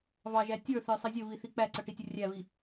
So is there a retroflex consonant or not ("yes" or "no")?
yes